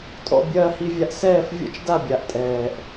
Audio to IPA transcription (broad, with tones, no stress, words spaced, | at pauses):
tʼɔ̰˨ bʲɐː˨hi˨vʲa˨ʔ sɛː˦˨fvʲɔ̰˦t͡ʃda˦˨bʲa˨ʔ tʼɛː˨ʔ